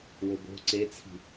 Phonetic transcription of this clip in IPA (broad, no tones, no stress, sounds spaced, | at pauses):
w o b o̤ ǀ e t͡sʰ i̤